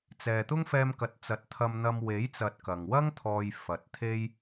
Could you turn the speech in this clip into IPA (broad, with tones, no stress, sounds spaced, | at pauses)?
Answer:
t͡s ɛː˨ t̪ ʊ˥ ŋ f ɛː˧ m k ɐ˨˥ t̚ t͡s ɐ˨˥ t̚ t̪ʰ ɐ˧ m n̪ ɐ˧ m w e˨˥ j t͡s ɐ˨ t̚ k ɐ˨ ŋ w ɐ˥ ŋ t̪ʰ ɔː˧ j f ɐ˨ t̚ t̪ʰ e˥ j